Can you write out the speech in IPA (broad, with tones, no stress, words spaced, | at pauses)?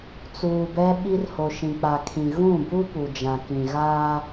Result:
t͡suː˨bɛ˦ɓi˦r ho˨ʃĩ˨k͡pa˨kʰĩ˨ ɣũ˦˨bu˦pu˨ d͡ʒã˨kĩ˨ɣaː˦